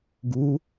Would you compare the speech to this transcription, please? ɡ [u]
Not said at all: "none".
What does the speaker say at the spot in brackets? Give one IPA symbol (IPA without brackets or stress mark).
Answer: u